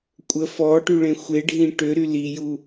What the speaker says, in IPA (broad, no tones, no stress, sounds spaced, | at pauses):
kʷʼ ə f ɔ ʈ y ɭ ẽ xʷ e ɖʱ ĩ ʈ ø ɾ y l i j u